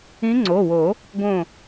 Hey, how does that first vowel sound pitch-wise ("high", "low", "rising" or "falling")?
rising